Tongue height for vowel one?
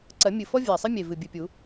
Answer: low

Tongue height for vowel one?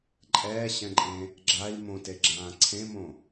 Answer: mid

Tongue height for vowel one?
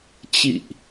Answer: high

